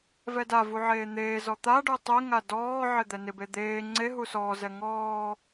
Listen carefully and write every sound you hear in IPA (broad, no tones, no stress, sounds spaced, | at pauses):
v ɛ d a v u ʕ eː n̪ eː z ɔ t̪ a ɖ u tˤ e ŋ a d ɔː ʕ ɪ d̪ ɛ n ɪ b e d̪ eː ŋ͡ǀ e ɦ u s ɔː z ɛ ŋ ɔː